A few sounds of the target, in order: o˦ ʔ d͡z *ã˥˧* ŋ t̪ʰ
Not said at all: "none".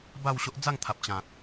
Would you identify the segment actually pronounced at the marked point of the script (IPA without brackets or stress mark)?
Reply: a˥˧